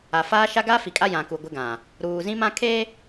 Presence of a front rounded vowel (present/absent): absent